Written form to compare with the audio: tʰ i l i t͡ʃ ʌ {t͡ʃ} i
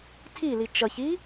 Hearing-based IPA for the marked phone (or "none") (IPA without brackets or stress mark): ç